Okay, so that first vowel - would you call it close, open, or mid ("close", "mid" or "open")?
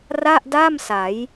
open